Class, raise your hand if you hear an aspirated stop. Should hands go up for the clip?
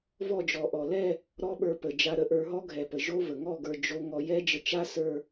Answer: no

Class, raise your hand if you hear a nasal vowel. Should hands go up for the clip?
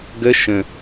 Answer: yes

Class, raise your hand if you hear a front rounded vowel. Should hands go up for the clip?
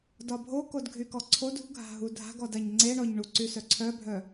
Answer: yes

